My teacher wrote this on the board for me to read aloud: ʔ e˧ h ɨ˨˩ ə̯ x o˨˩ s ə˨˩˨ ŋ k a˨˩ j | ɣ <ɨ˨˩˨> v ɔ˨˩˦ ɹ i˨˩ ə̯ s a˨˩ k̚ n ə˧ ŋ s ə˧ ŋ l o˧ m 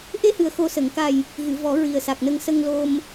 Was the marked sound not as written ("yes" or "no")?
no